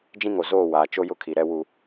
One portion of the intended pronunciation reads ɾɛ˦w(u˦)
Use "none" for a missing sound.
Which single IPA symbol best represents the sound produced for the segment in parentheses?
u˦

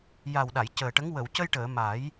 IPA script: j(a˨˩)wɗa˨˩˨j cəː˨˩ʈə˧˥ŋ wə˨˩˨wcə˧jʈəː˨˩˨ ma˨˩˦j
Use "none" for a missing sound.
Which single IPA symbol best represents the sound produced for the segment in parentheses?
a˨˩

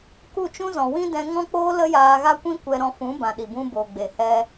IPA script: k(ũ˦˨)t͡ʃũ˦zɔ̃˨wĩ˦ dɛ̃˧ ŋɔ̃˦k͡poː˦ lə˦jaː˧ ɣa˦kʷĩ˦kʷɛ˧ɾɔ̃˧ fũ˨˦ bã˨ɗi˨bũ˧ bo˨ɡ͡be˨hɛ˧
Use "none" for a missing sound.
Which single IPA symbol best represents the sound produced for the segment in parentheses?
u˦˨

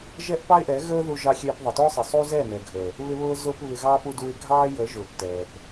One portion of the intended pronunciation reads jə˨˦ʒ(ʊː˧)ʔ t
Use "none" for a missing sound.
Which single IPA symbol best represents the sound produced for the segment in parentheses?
ʊː˨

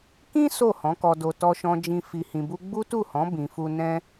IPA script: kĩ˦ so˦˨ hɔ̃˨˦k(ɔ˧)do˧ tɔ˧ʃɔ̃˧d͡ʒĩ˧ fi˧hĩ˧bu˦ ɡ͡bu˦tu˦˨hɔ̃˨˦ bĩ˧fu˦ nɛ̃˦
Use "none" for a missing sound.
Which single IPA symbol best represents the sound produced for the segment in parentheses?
ɔ˧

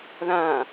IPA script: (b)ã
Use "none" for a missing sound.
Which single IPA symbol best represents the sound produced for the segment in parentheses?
ð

